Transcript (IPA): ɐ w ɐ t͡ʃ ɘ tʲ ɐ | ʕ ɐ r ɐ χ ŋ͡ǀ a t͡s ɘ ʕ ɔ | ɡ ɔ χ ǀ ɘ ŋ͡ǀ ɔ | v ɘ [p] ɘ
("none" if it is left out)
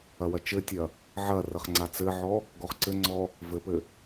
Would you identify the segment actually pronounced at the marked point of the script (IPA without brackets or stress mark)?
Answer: p